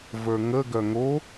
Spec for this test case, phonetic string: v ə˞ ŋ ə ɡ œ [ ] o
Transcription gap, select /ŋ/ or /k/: ŋ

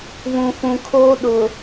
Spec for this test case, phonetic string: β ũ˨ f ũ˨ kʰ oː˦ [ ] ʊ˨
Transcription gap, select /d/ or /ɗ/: ɗ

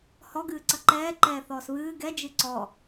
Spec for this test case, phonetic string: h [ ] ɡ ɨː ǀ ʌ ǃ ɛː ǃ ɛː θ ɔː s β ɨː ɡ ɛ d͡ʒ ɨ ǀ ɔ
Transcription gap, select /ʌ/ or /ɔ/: ɔ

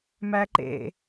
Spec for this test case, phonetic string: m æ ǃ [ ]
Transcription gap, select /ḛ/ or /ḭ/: ḛ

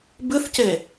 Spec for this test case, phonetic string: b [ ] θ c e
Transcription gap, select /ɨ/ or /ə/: ɨ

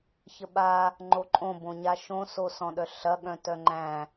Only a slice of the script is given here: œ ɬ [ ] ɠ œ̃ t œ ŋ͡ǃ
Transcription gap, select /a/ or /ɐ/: ɐ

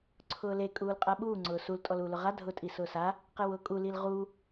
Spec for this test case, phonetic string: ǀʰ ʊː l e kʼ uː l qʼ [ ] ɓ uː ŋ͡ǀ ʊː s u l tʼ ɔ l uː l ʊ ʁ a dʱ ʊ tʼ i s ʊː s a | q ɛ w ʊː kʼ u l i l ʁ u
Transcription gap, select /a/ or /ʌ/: a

